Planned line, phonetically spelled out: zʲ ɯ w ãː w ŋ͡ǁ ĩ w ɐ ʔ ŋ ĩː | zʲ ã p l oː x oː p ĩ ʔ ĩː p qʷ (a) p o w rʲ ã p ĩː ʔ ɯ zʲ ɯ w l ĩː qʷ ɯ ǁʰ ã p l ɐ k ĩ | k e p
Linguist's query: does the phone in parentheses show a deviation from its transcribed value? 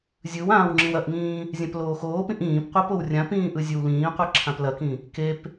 no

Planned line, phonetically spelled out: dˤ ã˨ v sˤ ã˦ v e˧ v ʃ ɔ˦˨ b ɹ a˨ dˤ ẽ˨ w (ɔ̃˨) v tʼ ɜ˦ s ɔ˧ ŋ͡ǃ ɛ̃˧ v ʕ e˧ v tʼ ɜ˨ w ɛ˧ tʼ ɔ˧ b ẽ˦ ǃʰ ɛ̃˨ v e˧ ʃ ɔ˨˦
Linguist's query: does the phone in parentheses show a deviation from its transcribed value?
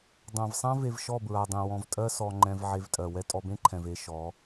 no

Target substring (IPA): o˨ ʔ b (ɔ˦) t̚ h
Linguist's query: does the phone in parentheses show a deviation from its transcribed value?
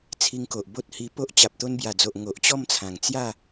yes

